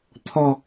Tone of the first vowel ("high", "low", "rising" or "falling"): low